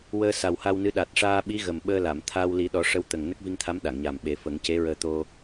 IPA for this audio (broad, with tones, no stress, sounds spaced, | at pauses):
w əː˧ s a˨˩ w h a˧ w n ɨ˧˥ ɗ a˨˩ t̚ ʂ aː˧ ɓ i˧˥ ɣ ə˨˩ m ɓ əː˧ l a˨˩˨ m t̪ʰ aː˧ w l i˨˩˦ ɗ ɔ˨˩˦ ʂ ə˧ w t̪ ə˨˩ ŋ n ə˦˥ k̚ v i˧ ŋ t̪ʰ a˧˥ m ɗ a˨˩˨ ŋ ɲ a˨˩ m ɓ e˨˩˦ f ə˨˩˦ ŋ c e˧˥ ɹ əː˧ t̪ o˧